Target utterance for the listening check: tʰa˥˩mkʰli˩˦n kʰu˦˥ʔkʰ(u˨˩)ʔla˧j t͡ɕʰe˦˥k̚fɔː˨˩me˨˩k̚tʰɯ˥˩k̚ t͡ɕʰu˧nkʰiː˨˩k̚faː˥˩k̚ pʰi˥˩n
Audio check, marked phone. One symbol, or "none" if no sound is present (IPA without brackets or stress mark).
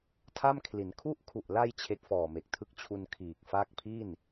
u˨˩